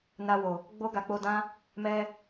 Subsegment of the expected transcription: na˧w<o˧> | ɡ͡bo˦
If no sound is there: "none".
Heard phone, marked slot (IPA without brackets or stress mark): o˨